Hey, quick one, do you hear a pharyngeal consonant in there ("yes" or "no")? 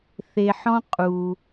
yes